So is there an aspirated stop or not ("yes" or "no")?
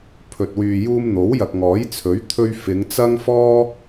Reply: yes